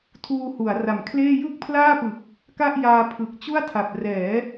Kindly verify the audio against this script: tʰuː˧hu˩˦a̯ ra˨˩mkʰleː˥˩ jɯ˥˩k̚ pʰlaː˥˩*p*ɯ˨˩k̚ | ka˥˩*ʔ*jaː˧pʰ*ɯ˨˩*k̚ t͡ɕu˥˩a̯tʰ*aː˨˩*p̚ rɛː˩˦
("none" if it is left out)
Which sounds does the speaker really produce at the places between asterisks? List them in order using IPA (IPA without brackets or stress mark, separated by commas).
p, ʔ, ɯ˨˩, a˨˩